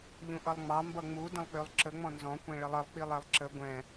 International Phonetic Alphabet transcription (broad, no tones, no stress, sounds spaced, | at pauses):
ʎ ũ ʔ ʌ lˠ ŋ͡m ɑ m b ʌ ŋ͡m u d ə̃ lˠ k͡p ø lˠ ǁ ə ŋ͡m ɔ̃ n z ɔ̃ kʷ ɛ̃ ɭ ə lˠ ə lˠ k͡p i lˠ ɛ lˠ ǁ ə ɡʷ ɛ̃